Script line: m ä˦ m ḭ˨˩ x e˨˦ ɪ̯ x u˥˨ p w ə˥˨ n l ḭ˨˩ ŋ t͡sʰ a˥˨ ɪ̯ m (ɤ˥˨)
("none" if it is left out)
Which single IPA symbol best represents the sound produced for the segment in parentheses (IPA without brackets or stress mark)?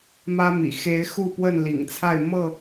ɤ˥˨